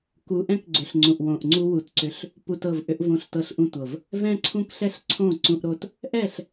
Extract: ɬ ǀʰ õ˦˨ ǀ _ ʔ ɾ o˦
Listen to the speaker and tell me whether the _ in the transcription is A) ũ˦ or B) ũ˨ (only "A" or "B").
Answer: A